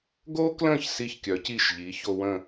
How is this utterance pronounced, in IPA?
ɡo˥klə̃˥˩ç si˥˩çkʲœ˩˥ci˥˩ʃʎi˩˥ ço˧wə̃˥˩

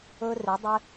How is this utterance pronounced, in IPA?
ɵ˦rɪ˨˦dˤɪ˦

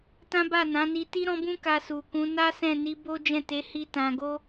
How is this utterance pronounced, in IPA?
tã˦ba˦˨nã˨˦ ni˧ ti˦ɾɔ̃˦bũ˦ka˧ su˨kũ˨˦na˦ sɛ̃˦˨ni˨˦ bo˦d͡ʒɛ̃˦˨te˨˦hi˧ tã˨ɡo˧

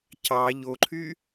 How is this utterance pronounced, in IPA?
cɑ ʎoǃʰy

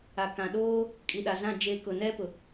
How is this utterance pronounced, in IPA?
a˨kã˨ɗoː˦ | kʼi˨ɗa˨zã˦˨ d͡ʒe˨ kʊ˨nɛ˦pʊ˨

